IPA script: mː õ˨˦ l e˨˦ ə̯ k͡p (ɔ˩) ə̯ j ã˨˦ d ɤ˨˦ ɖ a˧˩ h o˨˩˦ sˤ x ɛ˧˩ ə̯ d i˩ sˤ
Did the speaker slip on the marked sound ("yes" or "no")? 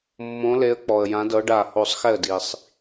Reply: no